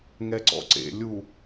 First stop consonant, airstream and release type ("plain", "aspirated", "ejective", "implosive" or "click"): click